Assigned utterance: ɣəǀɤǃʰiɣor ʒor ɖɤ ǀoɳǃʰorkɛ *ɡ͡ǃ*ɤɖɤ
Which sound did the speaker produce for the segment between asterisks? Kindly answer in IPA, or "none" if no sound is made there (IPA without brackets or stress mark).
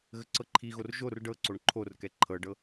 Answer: ǃʰ